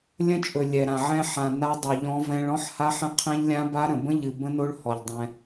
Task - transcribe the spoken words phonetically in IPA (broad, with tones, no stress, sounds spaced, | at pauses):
lʲ ə̃˦ t͡ʃʼ ɵ˨ lʲ ɛ˨ ɾ ã˨ ʕ ɛ̃˦ ħ ã˨ n a˦ dˤ u˨ ʎ ɔ̃˦ v ɛ̃˦ ɭ ɔ̃˦ ħ h a˦ ħ ə̃˦ qʰ ɛ̃˦ ʎ lʲ ã˦ b a˦ ɾ ə̃˨ b ə̃˦ ʎ ɨ˨ b ə̃˦ n o˦ ɭ h ɔ˨ ʎ dˤ ɛ̃˦